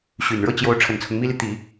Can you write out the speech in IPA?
ɕ y˨˩ n ɻ ɤ˥˩ t͡ɕ j o˧˥ ʊ̯ ʈ͡ʂʰ ə˨˩ n t͡sʰ ʊ˦ ŋ m i˥ l i˨ t̪ i˨˩˦

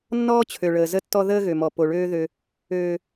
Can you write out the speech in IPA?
nː ɔː˦ t͡ɕʰ ø˨ ɭ əː˨ z ə˦ tː ɔ˦ ð əː˦ ɣ ø˨ m ɔ˨ p o˨ ɭ øː˦ ð ø˦ | øː˦

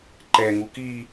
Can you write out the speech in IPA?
ǃ ɛ ŋ u k i

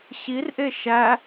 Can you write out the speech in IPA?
ɕ i r ʔ e ʃ æ

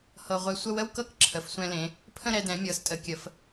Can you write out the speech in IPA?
h ɤ˧ ʁʷ ɛ˧ sʷ ə˥˧ w ə˥ w k ɤ˥ k ǁʰ ə˩˧ f sʷ ɛ̃˧ l ẽ˩˧ | pʰ ə̃˥˧ ɾ ɛ˧ d ɛ̃˩˧ mʲ ɤ˩˧ s tʼ ə˩˧ kʲ ə˩˧ f

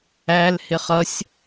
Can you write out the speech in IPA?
æ l h ɪ χ ʌ sʲ

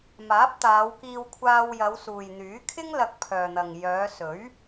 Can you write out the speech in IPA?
m aː˨˥ p̚ t̪ aː˨˧ w k iː˧ w kʷʰ aː˧ w j ɐ˨˧ w s uː˨ j n̪ yː˨˥ kʰ ɪ˥ ŋ l ɐ˧ k̚ pʰ œː˨ n̪ ɐ˨ ŋ j œː˨˧ s ɵ˨˥ ɥ

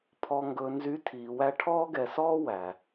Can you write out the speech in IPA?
pʰ ɔ˨ ŋ ɡ ɵ˨ n z y˨˦ tʰ iː˨ w æ˦ ʈʰ ɔː˦ ɡ ɛ˨ s ɔː˦ w æ˨

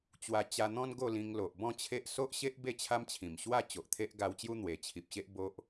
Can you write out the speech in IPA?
t͡ɕ w a˧ t͡ɕ a˧ n̪ ɔ̃˦ n ɡ o˥˧ l ĩ˧ ŋ l o˨ ʔ b ɔ̃˥˧ t͡ɕʰ e˦ ʔ s o˦ ʔ ɕ e˦ ʔ b e˥˧ t͡ɕʰ a˦ m t͡ɕʰ ĩ˨˩ m ɕ w a˥˧ t͡ɕ o˨ ʔ t̪ʰ e˦ ʔ ɡ a˧ w t͡ɕ j u˦ n̪ w e˧ t͡ɕʰ i˨ p̚ ɕ e˦ ʔ b o˦ ʔ

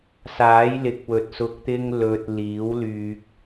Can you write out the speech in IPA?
s aː˨˥ j l ɪ˨˥ k̚ w ɵ˨ t̚ s ʊ˨ k̚ t̪ ɪ˧ ŋ l ɵ˧ t̚ l iː˨˥ w l yː˧ k̚

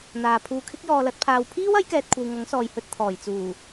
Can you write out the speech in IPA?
n̪ aː˨ pʰ uː˧ kʰ ɪ˥ k̚ j ɔː˨ l ɐ˧ t̚ pʰ aː˨ w pʰ iː˥ w ɐ˨˥ j k ɛː˨ t̚ kʷʰ ɐ˨ w ŋ ɐ˨˥ ŋ s ɔː˨ j h ɵ˧ t̚ t̪ʰ ɔː˨˩ j t͡s uː˨˩

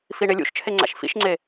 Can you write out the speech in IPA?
f i ɳ e lʲ ṵ ʃ t͡ʃʰ e ŋ͡ǀ a̰ ʃ f ḭ ʃ ŋ͡ǀ e

